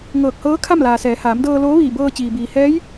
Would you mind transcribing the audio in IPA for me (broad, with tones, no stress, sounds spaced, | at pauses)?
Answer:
ŋ ɤː˧˩ k̚ h ɤː˧˥ kʰ a˥˨ m l aː˩ s ɛː˩˧ h aː˩˧ m d ɤː˧ l oː˧˥ ʋ iː˧˩ b ɤː˧ t͡ɕ iː˩ b iː˩ h ɛː˧˥ j